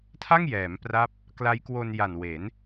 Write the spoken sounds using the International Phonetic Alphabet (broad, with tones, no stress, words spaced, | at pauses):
tʰa˥˩ŋ jɛː˩˦mpra˦˥p̚ | kla˦˥jkwo˧nja˨˩nwe˩˦n